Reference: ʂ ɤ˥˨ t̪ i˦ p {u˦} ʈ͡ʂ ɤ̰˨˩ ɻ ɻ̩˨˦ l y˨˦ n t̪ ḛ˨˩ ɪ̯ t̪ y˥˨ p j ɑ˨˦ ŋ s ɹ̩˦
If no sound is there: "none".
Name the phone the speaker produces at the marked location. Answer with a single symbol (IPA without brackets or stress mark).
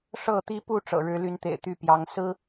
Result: u˥˨